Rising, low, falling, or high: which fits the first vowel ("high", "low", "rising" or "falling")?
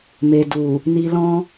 low